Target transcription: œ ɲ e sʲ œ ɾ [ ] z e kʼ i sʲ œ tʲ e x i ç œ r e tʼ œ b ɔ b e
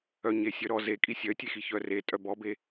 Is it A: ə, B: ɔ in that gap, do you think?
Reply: B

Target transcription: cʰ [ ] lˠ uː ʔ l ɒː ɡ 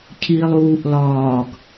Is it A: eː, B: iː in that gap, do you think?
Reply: B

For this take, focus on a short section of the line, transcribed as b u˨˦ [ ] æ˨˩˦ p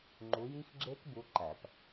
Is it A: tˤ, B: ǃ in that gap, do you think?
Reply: B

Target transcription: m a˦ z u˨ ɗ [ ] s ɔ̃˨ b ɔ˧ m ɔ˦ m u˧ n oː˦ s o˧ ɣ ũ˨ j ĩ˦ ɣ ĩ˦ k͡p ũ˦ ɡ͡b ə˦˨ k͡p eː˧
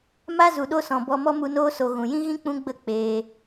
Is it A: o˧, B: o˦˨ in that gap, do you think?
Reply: A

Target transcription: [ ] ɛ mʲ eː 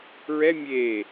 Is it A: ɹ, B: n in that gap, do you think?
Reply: A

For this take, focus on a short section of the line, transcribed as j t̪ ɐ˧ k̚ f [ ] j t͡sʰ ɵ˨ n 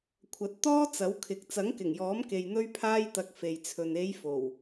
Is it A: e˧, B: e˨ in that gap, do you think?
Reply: B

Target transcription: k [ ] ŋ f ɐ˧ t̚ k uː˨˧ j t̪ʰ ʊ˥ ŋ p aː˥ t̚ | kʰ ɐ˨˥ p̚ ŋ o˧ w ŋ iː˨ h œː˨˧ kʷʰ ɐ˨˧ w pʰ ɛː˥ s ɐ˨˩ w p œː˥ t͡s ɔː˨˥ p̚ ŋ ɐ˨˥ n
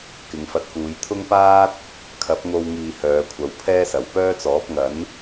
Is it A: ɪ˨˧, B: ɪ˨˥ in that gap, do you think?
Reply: A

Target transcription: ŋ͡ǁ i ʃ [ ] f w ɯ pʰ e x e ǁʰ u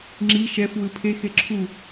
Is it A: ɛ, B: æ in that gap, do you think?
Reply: A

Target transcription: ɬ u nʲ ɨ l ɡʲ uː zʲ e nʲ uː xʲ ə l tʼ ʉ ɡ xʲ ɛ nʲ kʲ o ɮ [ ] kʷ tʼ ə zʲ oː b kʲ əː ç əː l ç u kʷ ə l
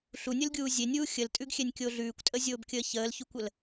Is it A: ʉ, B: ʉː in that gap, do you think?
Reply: B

